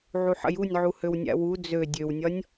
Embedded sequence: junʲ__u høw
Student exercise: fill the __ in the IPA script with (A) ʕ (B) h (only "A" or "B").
A